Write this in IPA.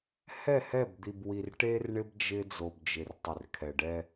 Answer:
h ɛ˦˨ h ɛ˦˨ b d̪ i˨ b w i˨ r ʈ e˦ r ɳ ɪ˦ b d͡ʒ ɪ˦ d͡z o˨ b d͡ʒ ɪ˨ r tˤ ɪ˨ r kʰ ɛ˨ ɖ ɛ˦

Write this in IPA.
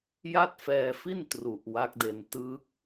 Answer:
j a˥˩ t̚ f ɛː˧ f i˥˩ n t r u˨˩ ʔ w a˦˥ k̚ d e˧ n t ɯ˦˥ k̚

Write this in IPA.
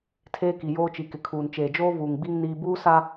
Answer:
tʰ eː˦ k i˨ j oː˦ t͡ʃ i˨ k ɪ˨ kʰ uː˨ n t͡ʃ eː˨ d͡ʒ oː˦ v uː˨ ŋ ɡ͡b i˦ ŋ n iː˦ b uː˦ s a˦

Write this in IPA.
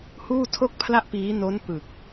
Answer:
h uː˥˩ tʰ o˥˩ k̚ pʰ l a˥˩ ʔ p iː˦˥ n o˦˥ n p ɯ˨˩ k̚

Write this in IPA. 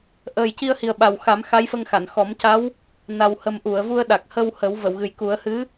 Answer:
ʔ əː˨˩ j c i˧ ə̯ h i˨˩ ə̯ ɓ a˨˩ w x a˨˩˦ m x a˧˥ j f ə˧ ŋ x a˨˩˨ n x ɔ˨˩˦ m c a˧˥ w | n a˨˩ w h ə˨˩ m ʔ u˨˩˨ ə̯ v u˧ ə̯ ɗ a˨˩ k̚ h ə˧ w h əː˨˩˦ w v ə˨˩˨ w ɣ ɨ˨˩ j k u˨˩˦ ə̯ h ɨ˧˥

